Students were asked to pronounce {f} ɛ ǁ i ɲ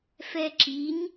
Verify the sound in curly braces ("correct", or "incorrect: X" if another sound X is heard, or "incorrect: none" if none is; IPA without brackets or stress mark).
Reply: correct